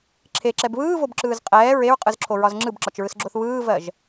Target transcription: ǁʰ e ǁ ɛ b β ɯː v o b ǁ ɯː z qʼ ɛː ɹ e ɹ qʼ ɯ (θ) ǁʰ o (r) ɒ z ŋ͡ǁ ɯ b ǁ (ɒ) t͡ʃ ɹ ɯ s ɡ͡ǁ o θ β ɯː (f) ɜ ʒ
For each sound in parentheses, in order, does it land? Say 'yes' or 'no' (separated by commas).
no, no, yes, no